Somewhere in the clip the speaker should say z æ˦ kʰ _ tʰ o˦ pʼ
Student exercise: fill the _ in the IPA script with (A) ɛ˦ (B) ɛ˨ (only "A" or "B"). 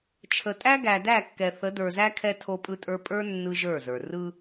A